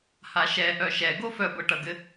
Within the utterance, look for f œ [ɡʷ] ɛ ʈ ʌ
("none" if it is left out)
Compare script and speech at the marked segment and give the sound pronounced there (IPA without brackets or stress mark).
ɡʷ